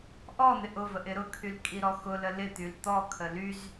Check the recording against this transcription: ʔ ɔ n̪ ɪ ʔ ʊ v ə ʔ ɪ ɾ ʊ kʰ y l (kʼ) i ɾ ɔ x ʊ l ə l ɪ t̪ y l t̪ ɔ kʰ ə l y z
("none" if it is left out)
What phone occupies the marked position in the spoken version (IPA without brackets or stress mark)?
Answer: kʼ